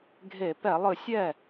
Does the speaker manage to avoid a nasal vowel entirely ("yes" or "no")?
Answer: yes